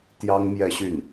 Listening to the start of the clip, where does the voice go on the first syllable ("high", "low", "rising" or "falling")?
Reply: high